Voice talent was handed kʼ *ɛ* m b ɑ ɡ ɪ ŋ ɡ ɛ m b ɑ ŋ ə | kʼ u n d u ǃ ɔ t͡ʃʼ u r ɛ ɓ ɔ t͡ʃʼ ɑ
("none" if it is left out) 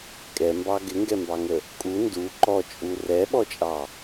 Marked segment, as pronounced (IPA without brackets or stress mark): ɛ